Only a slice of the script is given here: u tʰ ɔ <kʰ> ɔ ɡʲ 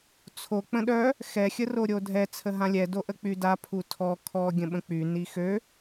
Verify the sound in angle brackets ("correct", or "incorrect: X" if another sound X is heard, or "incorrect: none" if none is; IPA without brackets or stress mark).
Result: correct